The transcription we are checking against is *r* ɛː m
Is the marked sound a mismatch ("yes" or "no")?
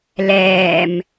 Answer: yes